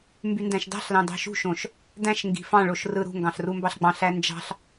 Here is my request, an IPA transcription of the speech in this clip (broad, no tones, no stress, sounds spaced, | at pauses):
m b y n d æ̃ ʃ d ɑ̤ ɬ l ɑ̃ d ɑ̤ ʃ ṳ ʃ õ ʃ | d æ̃ ʃ ŋ ɡ i̤ f ɑ̃ ɭ o ʃ r ɯ ɾ ṳ ŋ ɡ ɑ̃ ɬ r u m b ɑ ɬ ɡ͡b ɑ̃ ɬ æ n d͡ʒ ɑ̤ ɬ